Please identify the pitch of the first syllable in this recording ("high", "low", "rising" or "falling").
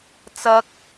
high